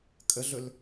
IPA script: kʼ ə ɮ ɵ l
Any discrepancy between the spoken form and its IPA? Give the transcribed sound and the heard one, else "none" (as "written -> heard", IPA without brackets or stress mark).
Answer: none